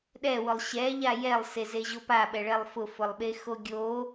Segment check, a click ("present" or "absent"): absent